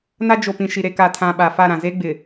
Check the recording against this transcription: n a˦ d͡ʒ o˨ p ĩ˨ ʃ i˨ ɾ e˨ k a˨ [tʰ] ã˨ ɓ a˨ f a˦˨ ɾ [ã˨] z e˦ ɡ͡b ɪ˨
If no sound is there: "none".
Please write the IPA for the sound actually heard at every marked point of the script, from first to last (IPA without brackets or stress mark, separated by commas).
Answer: tʰ, ã˨